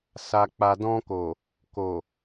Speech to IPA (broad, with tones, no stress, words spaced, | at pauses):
sa˨k͡pa˨dɔ̃˧ko˨ | ko˨